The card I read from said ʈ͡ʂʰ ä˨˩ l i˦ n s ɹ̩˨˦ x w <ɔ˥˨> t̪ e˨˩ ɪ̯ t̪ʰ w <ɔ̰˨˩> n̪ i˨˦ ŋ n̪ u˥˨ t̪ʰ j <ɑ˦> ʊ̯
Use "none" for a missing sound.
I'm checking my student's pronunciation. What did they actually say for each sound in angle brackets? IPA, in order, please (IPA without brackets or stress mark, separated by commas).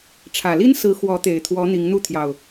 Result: ɔ˨˦, ɔ˨˦, ɑ˨˩